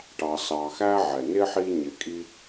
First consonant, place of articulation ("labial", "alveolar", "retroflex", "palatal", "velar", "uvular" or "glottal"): retroflex